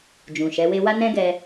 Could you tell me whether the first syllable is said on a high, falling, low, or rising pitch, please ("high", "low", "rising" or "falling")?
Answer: low